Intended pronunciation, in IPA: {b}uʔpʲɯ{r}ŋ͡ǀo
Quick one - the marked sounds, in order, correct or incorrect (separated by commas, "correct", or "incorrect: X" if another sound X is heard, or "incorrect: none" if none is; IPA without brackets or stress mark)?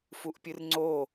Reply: incorrect: f, correct